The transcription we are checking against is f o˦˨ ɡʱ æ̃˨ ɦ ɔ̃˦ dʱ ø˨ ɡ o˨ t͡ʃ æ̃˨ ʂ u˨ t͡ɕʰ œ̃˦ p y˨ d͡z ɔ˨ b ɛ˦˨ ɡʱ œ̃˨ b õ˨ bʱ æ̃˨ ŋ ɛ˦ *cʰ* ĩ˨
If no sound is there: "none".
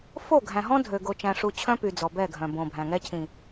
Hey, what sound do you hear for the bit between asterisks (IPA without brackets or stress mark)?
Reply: cʰ